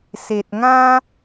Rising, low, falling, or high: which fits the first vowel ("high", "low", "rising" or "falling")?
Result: low